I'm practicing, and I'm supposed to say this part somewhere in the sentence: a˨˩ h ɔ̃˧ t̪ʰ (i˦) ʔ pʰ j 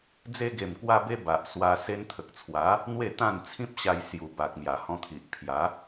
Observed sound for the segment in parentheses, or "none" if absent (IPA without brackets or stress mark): i˨